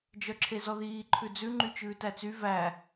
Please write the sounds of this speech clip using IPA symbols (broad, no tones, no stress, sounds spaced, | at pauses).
d͡ʒ œ ǁʰ e z ɔ ð iː ǃʰ ʉ d͡z ʉ ŋ͡ǃ y t͡ʃ ʉː t æ t͡s y v æ